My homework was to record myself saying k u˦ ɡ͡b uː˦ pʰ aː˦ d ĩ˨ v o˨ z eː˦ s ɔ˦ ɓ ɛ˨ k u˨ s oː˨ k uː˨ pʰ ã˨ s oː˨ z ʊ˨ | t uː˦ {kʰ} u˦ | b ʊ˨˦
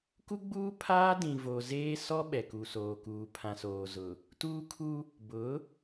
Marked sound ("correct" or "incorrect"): correct